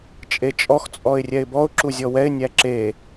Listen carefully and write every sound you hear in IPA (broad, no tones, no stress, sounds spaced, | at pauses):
t͡ʃʼ e t͡ʃʼ ɔ x t͡sʼ ɔ ɪ̯ rʲ ɛ ɪ̯ b ɔ ʊ̯ ǁ u zʲ ɔ w ɛ ɪ̯ nʲ æ ǁ e